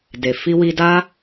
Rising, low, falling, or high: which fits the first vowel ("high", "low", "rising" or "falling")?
low